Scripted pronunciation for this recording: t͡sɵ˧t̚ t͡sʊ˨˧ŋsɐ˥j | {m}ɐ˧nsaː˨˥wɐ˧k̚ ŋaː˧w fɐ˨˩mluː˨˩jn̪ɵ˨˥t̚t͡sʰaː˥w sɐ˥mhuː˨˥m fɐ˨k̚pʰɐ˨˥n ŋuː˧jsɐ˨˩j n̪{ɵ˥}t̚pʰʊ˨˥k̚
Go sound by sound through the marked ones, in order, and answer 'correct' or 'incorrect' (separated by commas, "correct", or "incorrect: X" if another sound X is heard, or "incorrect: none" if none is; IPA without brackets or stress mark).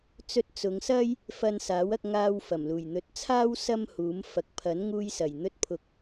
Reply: incorrect: f, incorrect: ɵ˧